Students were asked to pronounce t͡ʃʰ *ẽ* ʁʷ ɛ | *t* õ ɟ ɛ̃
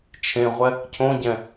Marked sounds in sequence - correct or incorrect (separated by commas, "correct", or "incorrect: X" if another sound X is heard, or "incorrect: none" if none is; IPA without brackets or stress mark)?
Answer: correct, incorrect: cʰ